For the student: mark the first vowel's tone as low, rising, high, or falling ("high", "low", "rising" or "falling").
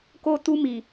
high